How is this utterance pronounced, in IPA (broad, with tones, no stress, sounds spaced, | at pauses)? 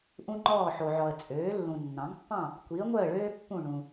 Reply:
ʔ ũ˥ ŋ͡ǃ ɔː˥˨ ħ o˨ ʕ ɔ˨ ə̯ t͡sʼ øː˩˥ lː ũ˨ nː ɑ̃˩˥ ŋ pː ɑ̃˥˨ | kʷ i˩˥ ə̯ ŋʷ œ˥˨ ə̯ ɭ øː˥ pː ũ˥˨ ɳ ũ˨